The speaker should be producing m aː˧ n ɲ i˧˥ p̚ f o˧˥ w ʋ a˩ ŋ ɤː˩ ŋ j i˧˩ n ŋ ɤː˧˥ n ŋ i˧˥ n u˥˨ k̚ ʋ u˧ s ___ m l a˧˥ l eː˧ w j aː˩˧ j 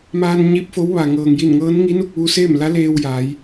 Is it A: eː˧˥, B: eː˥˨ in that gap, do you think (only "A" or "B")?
B